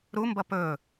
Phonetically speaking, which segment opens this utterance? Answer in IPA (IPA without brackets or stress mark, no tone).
ɾ